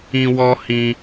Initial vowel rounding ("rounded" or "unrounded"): unrounded